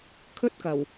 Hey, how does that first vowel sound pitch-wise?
high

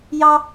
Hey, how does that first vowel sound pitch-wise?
high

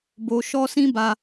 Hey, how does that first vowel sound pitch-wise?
low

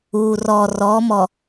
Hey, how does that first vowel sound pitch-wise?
low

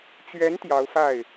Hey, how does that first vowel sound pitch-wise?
rising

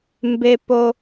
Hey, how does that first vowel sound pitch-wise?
high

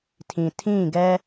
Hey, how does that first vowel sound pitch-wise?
low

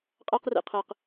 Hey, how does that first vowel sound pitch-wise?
high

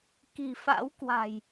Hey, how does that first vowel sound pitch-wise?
low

